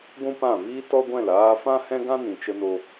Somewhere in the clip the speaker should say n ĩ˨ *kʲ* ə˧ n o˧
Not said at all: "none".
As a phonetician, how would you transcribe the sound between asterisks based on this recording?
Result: t͡ʃ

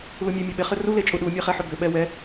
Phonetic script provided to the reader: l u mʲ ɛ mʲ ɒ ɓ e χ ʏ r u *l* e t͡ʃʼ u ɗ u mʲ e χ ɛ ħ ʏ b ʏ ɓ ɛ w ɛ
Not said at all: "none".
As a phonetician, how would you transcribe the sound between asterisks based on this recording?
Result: l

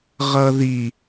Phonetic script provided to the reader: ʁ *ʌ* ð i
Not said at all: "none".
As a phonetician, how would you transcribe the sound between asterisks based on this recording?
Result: ʌ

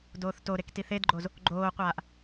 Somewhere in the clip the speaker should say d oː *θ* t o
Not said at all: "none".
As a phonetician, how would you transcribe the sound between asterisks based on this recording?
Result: θ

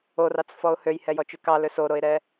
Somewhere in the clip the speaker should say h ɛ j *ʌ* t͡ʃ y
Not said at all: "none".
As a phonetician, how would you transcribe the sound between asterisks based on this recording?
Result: ɔ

